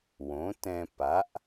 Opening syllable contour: rising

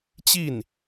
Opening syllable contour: falling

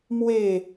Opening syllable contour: falling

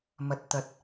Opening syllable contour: low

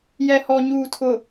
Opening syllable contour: low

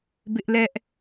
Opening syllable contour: high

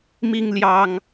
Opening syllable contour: high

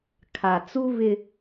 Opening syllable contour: low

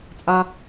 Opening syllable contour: low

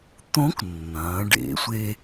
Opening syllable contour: rising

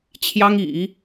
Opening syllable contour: high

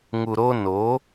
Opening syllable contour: low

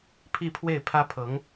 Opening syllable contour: falling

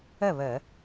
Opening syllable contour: falling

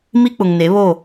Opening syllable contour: high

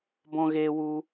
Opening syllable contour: high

